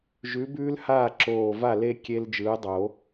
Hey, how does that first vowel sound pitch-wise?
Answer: rising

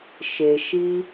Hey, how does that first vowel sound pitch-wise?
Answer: low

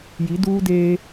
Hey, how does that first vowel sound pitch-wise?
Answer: rising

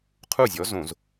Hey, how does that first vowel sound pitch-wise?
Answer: falling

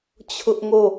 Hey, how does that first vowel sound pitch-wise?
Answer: high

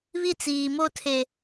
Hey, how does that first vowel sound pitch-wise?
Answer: high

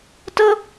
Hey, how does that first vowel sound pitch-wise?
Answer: high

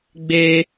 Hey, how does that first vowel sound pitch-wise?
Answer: high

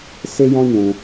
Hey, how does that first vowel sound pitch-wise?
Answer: high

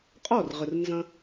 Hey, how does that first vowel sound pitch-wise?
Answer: falling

